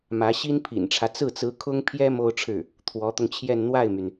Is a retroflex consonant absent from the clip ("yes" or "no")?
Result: no